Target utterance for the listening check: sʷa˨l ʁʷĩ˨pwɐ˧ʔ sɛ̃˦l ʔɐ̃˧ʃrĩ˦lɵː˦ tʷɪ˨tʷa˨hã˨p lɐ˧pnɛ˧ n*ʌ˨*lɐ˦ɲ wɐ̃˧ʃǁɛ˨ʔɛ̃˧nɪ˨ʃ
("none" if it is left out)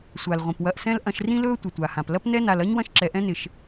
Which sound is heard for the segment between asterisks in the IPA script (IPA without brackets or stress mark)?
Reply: a˨